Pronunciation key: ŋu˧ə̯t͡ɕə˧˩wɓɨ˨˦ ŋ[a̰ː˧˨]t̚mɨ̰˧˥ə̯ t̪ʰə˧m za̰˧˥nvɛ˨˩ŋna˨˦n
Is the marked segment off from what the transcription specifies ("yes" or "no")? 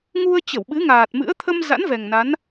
yes